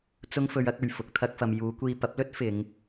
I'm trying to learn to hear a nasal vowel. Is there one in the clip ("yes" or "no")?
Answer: no